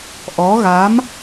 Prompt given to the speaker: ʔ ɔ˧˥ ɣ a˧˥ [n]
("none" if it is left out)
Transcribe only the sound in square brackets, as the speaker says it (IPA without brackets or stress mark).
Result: m